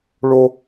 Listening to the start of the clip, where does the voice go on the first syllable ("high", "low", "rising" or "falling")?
high